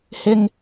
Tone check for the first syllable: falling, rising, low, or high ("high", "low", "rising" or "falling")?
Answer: high